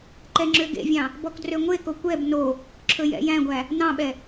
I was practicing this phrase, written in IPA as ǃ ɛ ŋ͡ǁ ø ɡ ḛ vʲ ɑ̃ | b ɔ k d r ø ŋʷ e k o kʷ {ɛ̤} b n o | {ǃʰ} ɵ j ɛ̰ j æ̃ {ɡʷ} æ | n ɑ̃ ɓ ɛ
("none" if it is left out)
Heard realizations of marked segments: ɛ, ǁʰ, ɡʷ

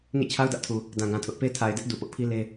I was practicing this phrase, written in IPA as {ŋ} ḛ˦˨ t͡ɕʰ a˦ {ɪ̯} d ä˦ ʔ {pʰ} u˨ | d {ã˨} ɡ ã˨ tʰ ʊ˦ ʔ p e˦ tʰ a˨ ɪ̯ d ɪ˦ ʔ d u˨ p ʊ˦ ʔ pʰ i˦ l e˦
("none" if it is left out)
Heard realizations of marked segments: ŋ, ʊ̯, tʰ, ã˨

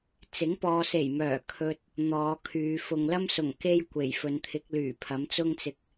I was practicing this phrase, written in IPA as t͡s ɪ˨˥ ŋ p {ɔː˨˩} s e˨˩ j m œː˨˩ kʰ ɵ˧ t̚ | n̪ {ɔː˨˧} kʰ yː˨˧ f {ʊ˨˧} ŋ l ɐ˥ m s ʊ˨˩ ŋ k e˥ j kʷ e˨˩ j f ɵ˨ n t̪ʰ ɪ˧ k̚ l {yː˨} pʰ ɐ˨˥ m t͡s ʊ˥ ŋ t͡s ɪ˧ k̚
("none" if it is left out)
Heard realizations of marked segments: ɔː˨, ɔː˨˧, ʊ˨, yː˨˩

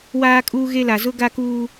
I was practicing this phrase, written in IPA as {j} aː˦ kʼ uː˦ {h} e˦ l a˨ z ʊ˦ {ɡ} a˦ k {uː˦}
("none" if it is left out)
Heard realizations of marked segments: w, ɣ, ɡ, uː˦

